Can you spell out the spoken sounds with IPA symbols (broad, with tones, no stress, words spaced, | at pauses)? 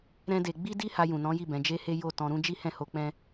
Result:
ɾɛ̃˦de˧ ɡ͡bi˦di˦ ha˧jũ˨nɔ̃˨˦ji˦˨ bɛ̃˨˦d͡ʒe˦he˦ jo˦˨tɔ̃˧ɾũ˦ d͡ʒi˦hɛ̃˦˨ho˧ k͡pɛ̃˦